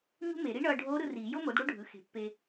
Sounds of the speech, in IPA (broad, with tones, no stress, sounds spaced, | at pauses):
ɲ ṳ˥ m e˨˩˦ ɾ i˧˥ ɳ ʌː˧ ɖʱ oː˧˥ ɾ ɯ˧ r iː˨˩˦ j o˥ m o˩˥ d ɽ o˥ ɖʱ ɯ˩˥ x e̤˩˥ pː e˧